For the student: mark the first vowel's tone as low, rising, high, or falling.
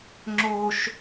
high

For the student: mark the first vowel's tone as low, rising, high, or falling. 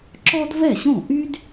high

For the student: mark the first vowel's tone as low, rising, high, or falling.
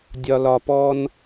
low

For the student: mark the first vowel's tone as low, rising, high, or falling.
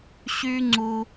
high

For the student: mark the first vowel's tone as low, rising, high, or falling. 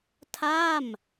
falling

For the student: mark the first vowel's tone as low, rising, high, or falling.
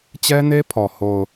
high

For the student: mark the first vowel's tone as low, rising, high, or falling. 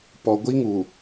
low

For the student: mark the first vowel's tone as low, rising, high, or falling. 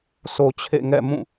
low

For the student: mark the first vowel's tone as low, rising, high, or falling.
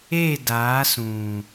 falling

